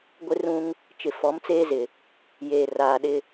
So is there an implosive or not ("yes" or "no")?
yes